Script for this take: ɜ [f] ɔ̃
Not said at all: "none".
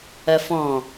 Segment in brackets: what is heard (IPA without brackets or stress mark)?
f